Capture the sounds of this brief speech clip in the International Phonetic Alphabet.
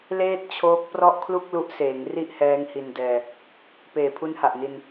leː˥˩t̚t͡ɕʰoː˦˥k̚ prɔ˥˩ʔkʰlu˥˩k̚lu˦˥ʔseː˩˦ŋ ri˥˩ʔhɛː˦˥ŋ hi˧ndɛː˧ | peː˨˩pʰu˦˥nha˨˩ʔ ni˧n

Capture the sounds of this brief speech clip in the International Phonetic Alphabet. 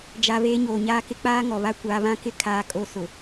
d͡ʒa˨ βeː˦ɲoː˨ɲaː˦ kɪ˦k͡paː˦ ŋɔ˨βa˦ kʷaː˨βã˦ kɪ˦ kʰaː˨kʼo˨ sʊ˨

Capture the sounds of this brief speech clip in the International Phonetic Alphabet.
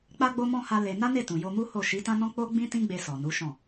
k͡pa˧ɡ͡bo˧mɔ̃˧ ha˧ le˧ na˦ne˦˨tũ˨ jo˧mu˦ho˦˨ ʃi˨˦tã˦nɔ̃˦ k͡po˦ ɡ͡bĩ˦tĩ˦ ɡ͡be˧ sɔ˨nu˨˦ʃɔ̃˦˨

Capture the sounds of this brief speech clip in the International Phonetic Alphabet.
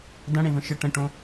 dɐ̃ɽẽvə̃ ʃə ʈə̃ʈõ

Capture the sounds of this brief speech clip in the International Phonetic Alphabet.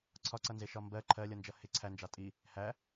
ǀʰɒǀʌnzɪʃɒ mbɜ ǃʰɜlʲʌnd͡ʒʌ hɪ ǀʰænd͡ʒɑ tʼi | hæ

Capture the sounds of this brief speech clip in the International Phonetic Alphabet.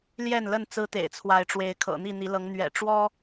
ljɛ˥˨nlə˥˨n t͡sɹ̩˦t̪ḛ˨˩ɪ̯t͡sʰwa˨˦ɪ̯ʈ͡ʂwe˨˦ɪ̯ kʰɤ̰˨˩n̪i˥˨n̪i˨˦lɤ˨˦ŋ n̪ɥɛ̰˨˩ʈ͡ʂwɔ˦

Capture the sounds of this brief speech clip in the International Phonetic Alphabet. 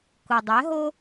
kʊ˩ dˤɛ˩˥ɦo˥

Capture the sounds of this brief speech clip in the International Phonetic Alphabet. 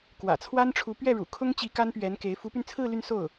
kwä̰˨˩t͡sʰwa˥nʈ͡ʂʰu˧˥ pɥɛ˥˩ɻṵ˨˩kʰʊ˥ŋt͡ɕi˧˥ ka˥npɥɛ˧˥nke˧˥ɪ̯ fu˧˥py˧nt͡sʰɹ̩˥˧ ly˥˧nso˥˩ʊ̯

